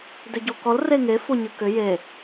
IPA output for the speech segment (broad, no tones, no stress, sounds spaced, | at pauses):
d ʏ ɟ o k ɔ l r e ŋ e f o ɲ ɯ k ʏ j e